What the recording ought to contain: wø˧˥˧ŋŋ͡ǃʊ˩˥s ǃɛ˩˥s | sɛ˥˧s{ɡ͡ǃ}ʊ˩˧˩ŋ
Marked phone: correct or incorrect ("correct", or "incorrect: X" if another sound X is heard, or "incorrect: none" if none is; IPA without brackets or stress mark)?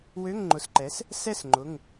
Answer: incorrect: ŋ͡ǃ